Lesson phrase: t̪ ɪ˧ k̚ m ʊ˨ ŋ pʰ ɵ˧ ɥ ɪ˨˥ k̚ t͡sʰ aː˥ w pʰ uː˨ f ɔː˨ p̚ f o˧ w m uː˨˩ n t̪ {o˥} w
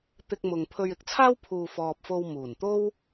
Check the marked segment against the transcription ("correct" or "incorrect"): correct